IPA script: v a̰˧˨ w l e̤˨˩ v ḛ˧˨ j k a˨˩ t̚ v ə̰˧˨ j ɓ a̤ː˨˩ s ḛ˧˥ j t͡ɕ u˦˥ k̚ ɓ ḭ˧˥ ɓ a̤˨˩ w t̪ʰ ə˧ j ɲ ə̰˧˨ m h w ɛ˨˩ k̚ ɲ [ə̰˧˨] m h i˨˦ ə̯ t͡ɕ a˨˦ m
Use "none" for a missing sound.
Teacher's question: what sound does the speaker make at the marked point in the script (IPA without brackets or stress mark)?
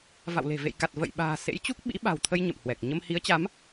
ə˧